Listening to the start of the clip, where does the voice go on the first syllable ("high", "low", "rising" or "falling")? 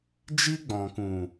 high